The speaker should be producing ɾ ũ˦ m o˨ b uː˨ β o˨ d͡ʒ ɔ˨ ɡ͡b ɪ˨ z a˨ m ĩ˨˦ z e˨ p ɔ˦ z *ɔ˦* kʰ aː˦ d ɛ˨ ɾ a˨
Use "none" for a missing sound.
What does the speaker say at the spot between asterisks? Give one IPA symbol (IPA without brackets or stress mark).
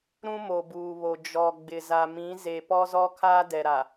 ɔ˦